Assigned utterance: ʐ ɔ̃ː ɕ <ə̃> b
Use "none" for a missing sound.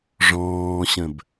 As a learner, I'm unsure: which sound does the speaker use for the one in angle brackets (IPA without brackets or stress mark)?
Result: ə̃